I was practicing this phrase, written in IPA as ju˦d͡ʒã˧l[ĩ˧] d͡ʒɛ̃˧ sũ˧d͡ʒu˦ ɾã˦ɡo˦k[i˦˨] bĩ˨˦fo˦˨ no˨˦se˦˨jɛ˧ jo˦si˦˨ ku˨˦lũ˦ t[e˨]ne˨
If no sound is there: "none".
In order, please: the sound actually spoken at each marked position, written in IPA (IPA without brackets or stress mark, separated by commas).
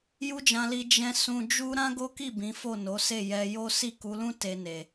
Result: i˧, i˦˨, e˧